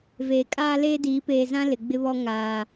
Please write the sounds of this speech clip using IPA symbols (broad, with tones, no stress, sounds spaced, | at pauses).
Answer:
v eː˨ kʼ aː˦ l eː˦ d iː˨˦ p eː˨ z ã˦ l ɪ˨ ɡ͡b ɪ˦ β ɔ˦ ŋ aː˨